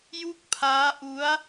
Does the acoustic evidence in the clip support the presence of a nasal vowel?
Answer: no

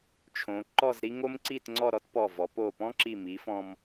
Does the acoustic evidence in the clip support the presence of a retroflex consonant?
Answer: no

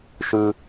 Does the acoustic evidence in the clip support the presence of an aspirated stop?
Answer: no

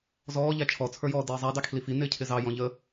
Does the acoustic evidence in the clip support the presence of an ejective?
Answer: no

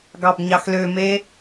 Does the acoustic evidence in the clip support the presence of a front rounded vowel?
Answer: yes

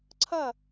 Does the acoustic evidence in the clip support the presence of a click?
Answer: yes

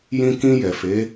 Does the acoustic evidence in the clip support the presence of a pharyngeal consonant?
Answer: no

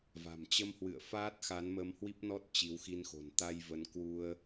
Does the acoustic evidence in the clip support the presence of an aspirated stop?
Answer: no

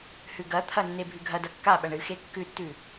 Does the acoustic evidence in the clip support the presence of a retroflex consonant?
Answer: yes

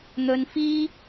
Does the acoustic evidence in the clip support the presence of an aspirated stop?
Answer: no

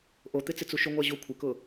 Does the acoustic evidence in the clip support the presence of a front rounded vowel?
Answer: no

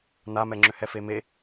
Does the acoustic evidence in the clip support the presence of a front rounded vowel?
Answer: yes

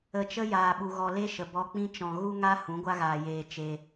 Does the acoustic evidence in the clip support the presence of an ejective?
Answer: no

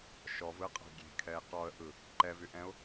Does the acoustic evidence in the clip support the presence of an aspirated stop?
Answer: yes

